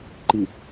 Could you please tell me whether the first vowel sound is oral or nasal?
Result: oral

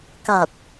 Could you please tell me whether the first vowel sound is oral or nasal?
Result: oral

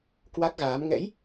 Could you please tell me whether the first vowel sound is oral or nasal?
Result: oral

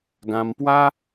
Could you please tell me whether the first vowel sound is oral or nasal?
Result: nasal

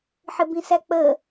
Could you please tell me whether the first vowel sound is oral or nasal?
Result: oral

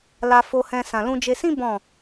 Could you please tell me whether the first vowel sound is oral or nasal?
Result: oral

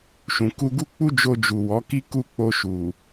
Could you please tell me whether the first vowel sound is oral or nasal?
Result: nasal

